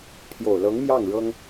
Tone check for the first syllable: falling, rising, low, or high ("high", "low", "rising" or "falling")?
low